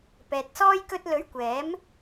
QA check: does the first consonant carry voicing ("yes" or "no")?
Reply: no